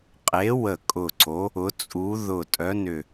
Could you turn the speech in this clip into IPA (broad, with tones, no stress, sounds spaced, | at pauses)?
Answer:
qʼ e˨˥ w ə˧˩ kʼ ʊ˧˩ ǀ o˨˥ | ʊ˨˥ t͡sʼ u˨˥ ð ʊ˧˩ tʼ œ˨˥ n ʏ˧˩